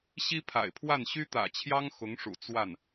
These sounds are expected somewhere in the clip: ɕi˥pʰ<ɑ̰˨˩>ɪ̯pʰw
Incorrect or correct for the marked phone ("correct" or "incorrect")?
incorrect